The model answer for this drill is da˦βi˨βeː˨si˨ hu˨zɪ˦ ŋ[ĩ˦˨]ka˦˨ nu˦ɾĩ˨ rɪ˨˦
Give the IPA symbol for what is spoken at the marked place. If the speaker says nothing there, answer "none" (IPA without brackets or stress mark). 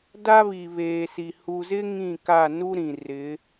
ĩ˦˨